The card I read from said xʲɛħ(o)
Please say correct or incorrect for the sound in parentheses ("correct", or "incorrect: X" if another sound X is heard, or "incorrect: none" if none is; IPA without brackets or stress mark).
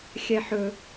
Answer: incorrect: ɵ